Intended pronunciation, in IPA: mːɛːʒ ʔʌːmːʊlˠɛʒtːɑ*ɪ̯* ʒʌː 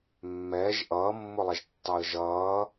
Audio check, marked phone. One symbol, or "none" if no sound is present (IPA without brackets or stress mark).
ə̯